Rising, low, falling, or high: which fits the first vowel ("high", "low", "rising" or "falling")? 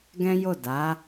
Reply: high